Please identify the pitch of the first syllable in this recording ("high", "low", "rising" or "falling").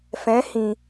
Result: rising